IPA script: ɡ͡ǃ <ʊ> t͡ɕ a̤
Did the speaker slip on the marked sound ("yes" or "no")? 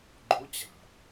no